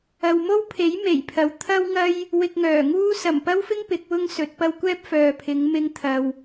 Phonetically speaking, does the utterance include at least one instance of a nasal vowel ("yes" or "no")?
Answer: no